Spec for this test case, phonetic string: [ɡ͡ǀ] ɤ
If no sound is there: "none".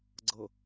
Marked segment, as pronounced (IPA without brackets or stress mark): ɡ͡ǀ